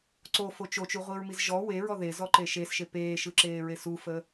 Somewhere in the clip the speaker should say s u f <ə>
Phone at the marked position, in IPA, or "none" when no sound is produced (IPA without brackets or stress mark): ə